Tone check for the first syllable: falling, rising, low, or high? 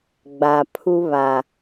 low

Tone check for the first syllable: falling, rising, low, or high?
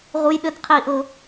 high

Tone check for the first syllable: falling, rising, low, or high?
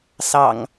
low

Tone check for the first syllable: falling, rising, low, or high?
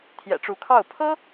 low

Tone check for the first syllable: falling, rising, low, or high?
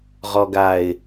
low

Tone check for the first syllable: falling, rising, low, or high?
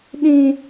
high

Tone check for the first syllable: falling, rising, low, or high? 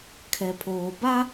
low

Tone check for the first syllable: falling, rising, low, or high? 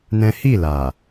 high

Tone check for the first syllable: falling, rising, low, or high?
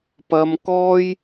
high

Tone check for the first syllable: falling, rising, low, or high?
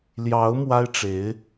rising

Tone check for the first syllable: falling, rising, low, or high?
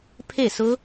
falling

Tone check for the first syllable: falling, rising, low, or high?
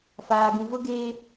low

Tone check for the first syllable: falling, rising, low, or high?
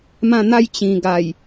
falling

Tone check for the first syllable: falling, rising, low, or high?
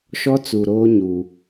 high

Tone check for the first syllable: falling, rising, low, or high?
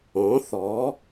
rising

